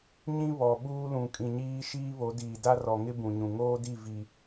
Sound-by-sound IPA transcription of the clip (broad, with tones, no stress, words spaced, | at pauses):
ɲĩ˦ βɔ˨ ɓuː˦lũ˨kʼĩ˨ɲiː˦ ʃiː˦βo˨˦diː˨ da˦rɔ˨ŋɪ˦ bũ˨ɲũ˨ ŋoː˦di˦˨ vi˦